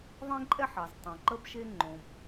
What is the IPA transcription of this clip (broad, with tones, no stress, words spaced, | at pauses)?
ðˤẽ˥ǃʼɛ˥ħɑ˩ztˤõ˩ ǃə˥bʃe˥ ŋ͡ǃõ˩b